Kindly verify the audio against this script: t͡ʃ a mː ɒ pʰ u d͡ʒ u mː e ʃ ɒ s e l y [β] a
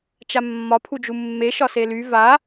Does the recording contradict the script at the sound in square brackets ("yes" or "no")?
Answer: yes